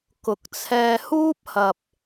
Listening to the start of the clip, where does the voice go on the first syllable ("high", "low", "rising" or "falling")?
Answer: rising